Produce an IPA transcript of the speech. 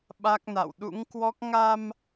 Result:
ɓa˦˥k̚na̰˧˨w ɗṵ˧˥ŋkwɔ˦˥k̚ ŋa˧m

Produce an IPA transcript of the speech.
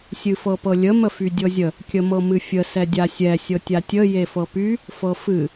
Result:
sʲɨfɤpɤlʲə məfydʲɤzʲə | kʲəmɤmɨfʲə sɛdʲasʲɛ sʲɤtʲatʲə jefɤpy | fɤfɨ

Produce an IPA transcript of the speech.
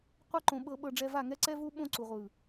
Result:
qʷɤ˦ǃõ˨ ɓɤ˨ɓɤ˨ɖ͡ʐɛ˨ va˦˨ ŋɛ˦ǀɛ˦vu˦ ɓõ˦ǀu˨ʁʷɯ˨

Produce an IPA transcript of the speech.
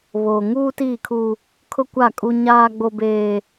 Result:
βoː˨ŋuː˦tiː˦˨kʰu˦ | kʰʊ˦kʷa˦˨kʼu˦ ɲaː˦ɡ͡bo˦beː˦

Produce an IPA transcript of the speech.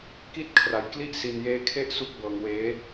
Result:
ki˥˩t̚kʰra˧jkli˥˩ʔ si˧njeː˦˥ kʰe˥˩ʔsu˥˩k̚bɤː˧ŋweː˦˥

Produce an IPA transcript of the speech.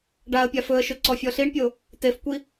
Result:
ɖaə̯pʲa fɵə̯ʃɵ ǀɔfʲɔɬiɳpʲo | tefkʷi

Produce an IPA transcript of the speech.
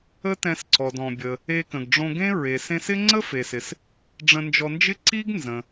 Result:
ə˥tɛ̃˧sǀɔ˩d ɔ̃˩bʲə˩ | e˧kə̃˩ɡɖ͡ʐõ˧ɡẽ˥ ɹe˩sẽ˧sɪ˥ ŋ͡ǀə˥fe˩sɪ˩s | ɖ͡ʐə̃˧nd͡ʒɔ˧nd͡ʒɪ˥ ǀi˥ɡ nzə̃˩

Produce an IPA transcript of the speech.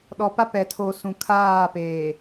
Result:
ɗɔ˨pa˦pɛ˨ tʰo˨ sũ˨kʰaː˦˨peː˨

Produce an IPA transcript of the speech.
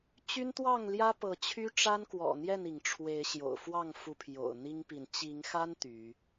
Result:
t͡ɕy˦nt̪wɑ˥˨ŋljä˦ pɤ˨˦t͡ɕʰy˦ʈ͡ʂa˦n kwɔ̰˨˩ n̪jɛ˥˨ni˩ŋʈ͡ʂʰwe˨˦ɪ̯ ɕjo̰˨˩ʊ̯fwɑ˥˨ŋ fu˨˦pʰjo̰˨˩ʊ̯ n̪i˦ŋpi˨n t͡ɕi˨˦ŋxa˦n t̪y˨˦

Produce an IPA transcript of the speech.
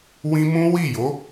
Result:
wĩ˦ mũ˦wi˦˨jo˨˦

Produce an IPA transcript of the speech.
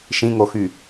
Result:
ʃĩŋoxy

